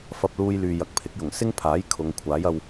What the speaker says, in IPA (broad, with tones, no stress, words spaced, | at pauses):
fɐ˧p̚luː˧jlyː˨ jɐ˨k̚pʰɪ˨˥k̚jʊ˨˩ŋ sɪ˥ŋpʰaː˨˥j kʰʊ˨˧ŋkʷʰaː˨˥jɐ˧w